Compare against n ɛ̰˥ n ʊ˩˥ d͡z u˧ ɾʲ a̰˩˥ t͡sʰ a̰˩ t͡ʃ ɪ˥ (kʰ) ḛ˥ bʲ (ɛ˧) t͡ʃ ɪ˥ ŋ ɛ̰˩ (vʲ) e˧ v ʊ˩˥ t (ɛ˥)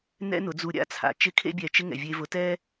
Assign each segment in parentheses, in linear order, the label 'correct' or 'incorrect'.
correct, correct, correct, correct

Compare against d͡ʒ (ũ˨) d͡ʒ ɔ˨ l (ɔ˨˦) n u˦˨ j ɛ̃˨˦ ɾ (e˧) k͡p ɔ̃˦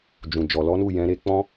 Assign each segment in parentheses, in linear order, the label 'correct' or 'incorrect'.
correct, correct, correct

